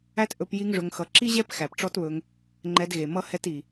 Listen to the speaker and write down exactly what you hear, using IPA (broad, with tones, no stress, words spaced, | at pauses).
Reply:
æ˦t ʔɵ˧p ji˦ŋʐɵ˧ŋxʌ˧ ǁi˦ʑɛ˦p xæ˨pʈ͡ʂɔ˦tβɵ˧ŋ | ŋ͡ǃɛ˧dɣe˨ mʌ˦hɛ˦t i˨